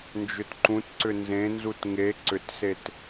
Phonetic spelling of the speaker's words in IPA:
n d͡ʒ ʏ t ǃ ũ t ǀ ʏ n z ẽ n z u t ŋ e ǀ ʏ t s e t

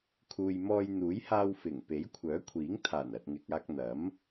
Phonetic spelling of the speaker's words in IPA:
kʰ uː˨ j m ɔː˧ j n̪ uː˨˥ j h aː˧ w f ɪ˨˩ ŋ p e˨˥ j kʷʰ œː˨˥ kʷʰ iː˨˥ ŋ t̪ʰ aː˨˩ n ɐ˨ t̚ ŋ ɪ˨ k̚ aː˧ k̚ n̪ ɐ˨˥ m

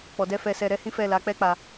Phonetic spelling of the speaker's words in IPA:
k͡p ɔ˨ d ɛ˧ f ɛ˧ s ɛ˧ ɾ ɛ˦ h ĩ˦ f ɛ˦˨ l a˨˦ k͡p ɛ˦ k͡p a˧

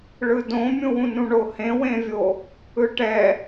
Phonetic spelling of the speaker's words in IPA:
ɭ ɯ d õ mʲ ũ w ũ n ũ ɳ o h ẽ w ẽ vʲ o | ɯ ʈ ɛ

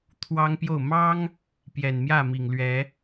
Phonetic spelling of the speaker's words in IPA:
t̪ʰ w ɑ˦ ŋ p j o˥˨ ʊ̯ m ɑ˦ ŋ | p j ɛ˨˩ n m j ä˥˨ m i˨˩ ŋ l ɥ ɛ˨˦

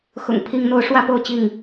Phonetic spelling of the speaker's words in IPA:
x ʊ̰˨˩ ŋ pʰ i˦ ŋ n̪ o˦ ʊ̯ ʂ w ä˥˨ p o˥˨ ʊ̯ t͡ɕ i˥˨ ŋ

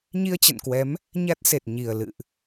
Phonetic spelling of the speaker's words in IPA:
ɲ i˧ ə̯ t͡ɕ ə̰˧˨ n k w ɛ˨˦ m | ɲ a˦˥ t̚ s e˨˩ t̚ ɲ i˨˩ ə̯ l ɨ̰˧˨ ʔ

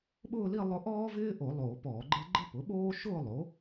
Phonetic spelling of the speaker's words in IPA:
ɓ ʊː˥˧ l i˥˧ lˠ ʊ˥ ʔ ɔː˥ v ɪː˥ ʔ o˧˩˧ lˠ oː˧˩˧ p ɔː˧˩˧ ɡ͡ǃ ɪ˥ l ɡ͡ǃ ɪ˥˧ p ʊ˩˥ ɓ oː˥ ʃ ʊː˥˧ lˠ o˩˥

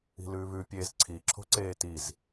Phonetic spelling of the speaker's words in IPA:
i̤ l ʉː β ʉ pʲ eː z ǀʰ i ǁʰ o̤ ǀ eː t i z

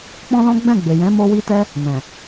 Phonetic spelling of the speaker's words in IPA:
k͡p ɔ̃˦ l ɔ̃˦ ɡ͡b ɛ̃˦˨ ɡ͡b e˨ j ɛ̃˨˦ m o˧ w i˧ t ɛ˧ | n ɛ̃˨

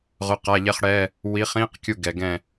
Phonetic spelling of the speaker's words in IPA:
ʁ ʊ˧˥˧ q a˧˥˧ ʎ ɛ˥ χ ɽ ɛ˧˥˧ | w i˨˥ χ ĩ˧˥˧ q kʲ u˦˨ ɡ ɛ˨ ɡ ɛ̃˦˨

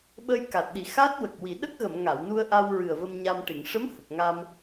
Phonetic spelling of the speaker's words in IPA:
ɓ ə˧ j k a˨˩ t̚ ɗ i˨˩ x a˦˥ t̚ w ə˨˩ k̚ w i˨˩˨ ɗ ə˦˥ k̚ ɣ ə˨˩˨ m ŋ a˨˩˨ w n u˧ ə̯ ʔ a˧ w ɹ ɨ˨˩ ə̯ v ə˧ m ɲ a˧ m ʈ i˨˩˨ ŋ ʂ ə˧˥ m h ə˨˩ k̚ ŋ a˧ m

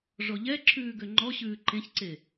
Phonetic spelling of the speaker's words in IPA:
ʐ ɔ ʎ ɛ ǁʰ ʉː ɡ ø ŋ͡ǃ ɔ ɕ ʉː ǃ ẽ ç ǀ e

